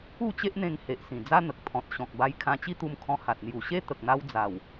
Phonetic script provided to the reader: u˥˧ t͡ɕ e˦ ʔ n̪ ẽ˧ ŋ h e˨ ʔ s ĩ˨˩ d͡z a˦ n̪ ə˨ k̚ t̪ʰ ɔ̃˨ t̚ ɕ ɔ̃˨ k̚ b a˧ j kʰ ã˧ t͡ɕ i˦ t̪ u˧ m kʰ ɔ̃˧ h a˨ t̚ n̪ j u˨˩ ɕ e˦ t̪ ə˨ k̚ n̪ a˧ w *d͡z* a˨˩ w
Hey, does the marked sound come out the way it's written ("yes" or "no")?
yes